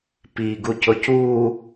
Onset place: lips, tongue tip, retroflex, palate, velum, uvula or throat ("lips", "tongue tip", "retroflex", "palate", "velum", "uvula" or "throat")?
lips